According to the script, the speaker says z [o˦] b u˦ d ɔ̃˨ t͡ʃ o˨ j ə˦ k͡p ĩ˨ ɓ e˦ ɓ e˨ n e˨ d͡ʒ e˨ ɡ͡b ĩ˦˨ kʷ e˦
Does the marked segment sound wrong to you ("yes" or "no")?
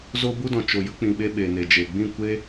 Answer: no